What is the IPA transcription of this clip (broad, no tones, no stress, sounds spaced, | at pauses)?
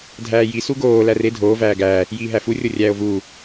dʱ æː j i s u ɡ oː l æ r e dʱ oː v æː ɡ æː | j iː ɦ æ f u rʲ o rʲ æː o̯ v uː